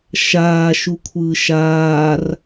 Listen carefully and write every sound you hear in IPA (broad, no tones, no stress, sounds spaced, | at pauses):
ʃ aː ʃ u kʷʰ ɯː ʃ aː r